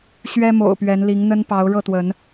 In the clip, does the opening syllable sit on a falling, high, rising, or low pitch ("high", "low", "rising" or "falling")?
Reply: high